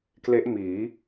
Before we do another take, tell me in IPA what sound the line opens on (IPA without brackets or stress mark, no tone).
k